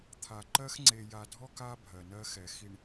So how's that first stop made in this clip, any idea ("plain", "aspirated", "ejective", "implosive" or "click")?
aspirated